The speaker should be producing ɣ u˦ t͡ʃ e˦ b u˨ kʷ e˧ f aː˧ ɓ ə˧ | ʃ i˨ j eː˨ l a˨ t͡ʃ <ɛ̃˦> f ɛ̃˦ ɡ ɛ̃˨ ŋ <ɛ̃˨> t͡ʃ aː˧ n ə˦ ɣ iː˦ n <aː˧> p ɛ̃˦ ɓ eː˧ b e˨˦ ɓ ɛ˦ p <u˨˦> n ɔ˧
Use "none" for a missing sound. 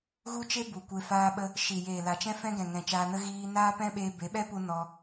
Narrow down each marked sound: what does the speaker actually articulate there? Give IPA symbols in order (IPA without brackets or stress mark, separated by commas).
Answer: ɛ̃˦, ɛ̃˨, aː˦, u˧